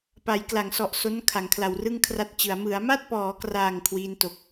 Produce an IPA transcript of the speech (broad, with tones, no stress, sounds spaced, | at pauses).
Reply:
p a˩˦ j k l a˩˦ ŋ s ɔ˨˩ ʔ s o˦˥ n kʰ a˩˦ ŋ kʰ l a˨˩ w r ɯ˥˩ ŋ kʰ r a˦˥ t̚ t͡ɕ ɯ˩˦ a̯ m ɯ˩˦ a̯ m a˥˩ t̚ p ɔː˩˦ k r aː˨˩ ŋ kʰ w iː˦˥ n t o˨˩ k̚